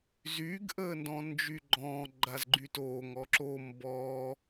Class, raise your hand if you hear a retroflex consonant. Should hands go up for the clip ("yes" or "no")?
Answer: no